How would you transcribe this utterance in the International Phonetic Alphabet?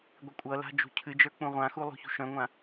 ɡʷ i kʷʼ ʌ l a̤ d͡ʒ ṳ cʰ ɨ d͡ʒ ə˞ k͡p ũ ʁʷ ã x u lˠ ṳ ç ṳ ʃ œ̃ ŋʷ ã

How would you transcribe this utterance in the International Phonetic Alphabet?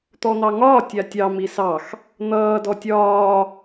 t̪ ɔ n̪ ɑ ŋ ɒː tʲ a tʲ ɑ m i s ɑ x | n̪ ʌː d ɔ tʲ ɒː

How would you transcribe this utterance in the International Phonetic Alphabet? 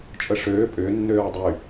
t͡ʃʼ ə ʂ øː pʼ ʏː nː øː w dˤ y

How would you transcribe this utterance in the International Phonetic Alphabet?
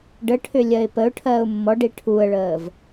ɖ ə ʈʰ ʏ lʲ ɜ ɪ̯ p ə ʊ̯ ʈʰ ɜː ʊ̯ mː ɔ ɖ i ʈʰ u ə̯ ɭ əː v

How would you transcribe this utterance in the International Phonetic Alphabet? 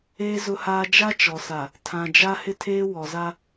eː˦ z ʊ˦ h aː˦ d͡ʒ a˦ t͡ʃ ɔ˨ s a˨ | tʰ ã˨ d͡ʒ a˦ h ɪ˦ tʰ eː˦ w ɔ˨ z a˦

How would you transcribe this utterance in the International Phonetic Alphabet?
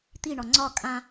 t̪ i ɳ ɒ ŋ͡ǀ ɒ kʼ ã

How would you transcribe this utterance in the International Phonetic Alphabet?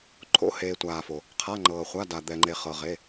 ǃʰ o̰˩˧˩ h eː˩ tʷ aː˩ f o˩ | qʰ a˩˧˩ ŋ͡ǃ ɤː˩ χʷ a˩˧˩ d a˩ d̪ ɛ˩ ŋ͡ǃ e˩ χ ɤ˩ ʁ e˩˧˩

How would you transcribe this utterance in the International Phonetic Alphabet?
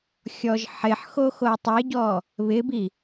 xʲ ɔ ʒ ħ ɪ ħ x o x o u̯ tˤ e ɟ ɔ | β ɪ b i

